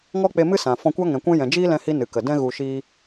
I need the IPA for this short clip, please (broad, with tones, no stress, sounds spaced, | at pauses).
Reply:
ŋ ɔ˦ k͡p e˧ m ɨ˦ s ã˨ f ɔ̃˧ kʷ a˦ ŋ ɛ̃˨ kʷ ɛ̃˧ j ɛ̃˨ d͡ʒ iː˦ l ɛ̃˧ h i˧ n ɨ˨ k ə˨ d ɛ̃˦ ɣ u˧ ʃ iː˦